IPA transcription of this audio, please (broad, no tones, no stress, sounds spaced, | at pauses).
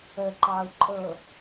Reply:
ə ǃ ɑ u̯ ǃʼ ɤ